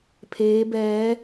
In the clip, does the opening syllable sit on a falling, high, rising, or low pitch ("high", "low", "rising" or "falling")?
rising